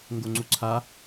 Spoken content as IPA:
ŋ ɡ o ŋ͡ǀ u ǀʰ a

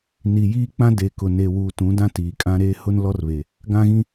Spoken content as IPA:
n i˨ j iː˦ k͡p ã˦ d e˨ k ʊ˨ n e˨ w uː˨ t ũ˨˦ d ã˦ t iː˨ kʼ ã˦ ɾ eː˦ h ʊ˦ n l ɔ˦ r β e˨ | ɡ ã˦ ɣ ĩ˦

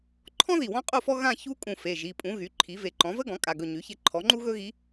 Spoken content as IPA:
ǃʰ ɔ̃˥ ð i˧˩ w ɔ̃˥ qʼ u˥˧ f ɔ˥ ɣ ã˥˧ ç u˥ kʼ ũ˧˩ f e˩˧˩ ʒ i˩˧˩ pʼ ũ˩˥ ɣ y˩˥ ǃʰ i˩˥ v e˧˩ ǃ ɔ̃˩˥ v ə˥ ɡ ɔ̃˩˥ kʼ a˩˧˩ ɡ ɵ˧˩ ɲ y˩˥ ç e˧˥ ǃʰ ɔ˩˥ ŋ͡ǃ u˥ ɣ ɵ˥ ɣ i˧˥

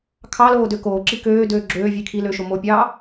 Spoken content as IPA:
kʰ ɑ l oː d ø k oː ǁ i k øː d øː ɡ͡ǁ øː vʲ e kʰ i l ø ʃ o m o pʲ ɑː

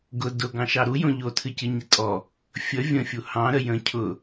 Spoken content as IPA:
ɡ ʊ d ʊ ɡ ɑ̃ ʃ ɑ ɾ u j õ ʎ o tʰ ɨ c ɨ ɲ ɪ tʼ ɔ | fʲ ə vʲ ə̃ fʲ u h ɑ̃ ɾ ə j ə̃ cʰ ʊ

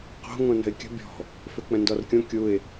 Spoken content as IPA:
q o̤ ŋ õ n ə̤ ɪ̯ kʲ ə̤ bʲ ɔ̤ | f ø k͡p ə̃ n d ɔ r kʲ õ kʲ u ɪ̯

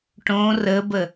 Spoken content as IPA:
ʈ õ r ə b ə

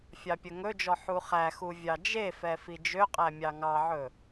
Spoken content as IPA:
fʲ ɑ pʲ ɵ ŋ ɵ d͡ʒ ɔ ħ u χ æ x u vʲ ɑ d͡ʒ e f ɛ f i d͡ʒ ø qʼ æ mʲ ɑ ŋ ɑ ʕ ɵ

